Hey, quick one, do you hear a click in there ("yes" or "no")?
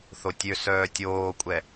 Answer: no